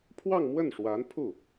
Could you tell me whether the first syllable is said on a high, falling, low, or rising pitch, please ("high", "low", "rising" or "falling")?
falling